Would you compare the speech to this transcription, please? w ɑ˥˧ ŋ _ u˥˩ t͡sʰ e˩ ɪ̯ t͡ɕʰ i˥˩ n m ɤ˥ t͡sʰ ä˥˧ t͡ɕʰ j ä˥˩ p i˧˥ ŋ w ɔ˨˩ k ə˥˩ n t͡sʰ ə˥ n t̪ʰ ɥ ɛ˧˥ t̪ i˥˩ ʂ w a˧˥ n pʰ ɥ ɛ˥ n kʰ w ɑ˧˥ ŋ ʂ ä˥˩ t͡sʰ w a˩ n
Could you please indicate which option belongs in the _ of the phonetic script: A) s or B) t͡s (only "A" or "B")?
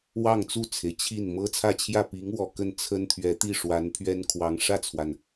B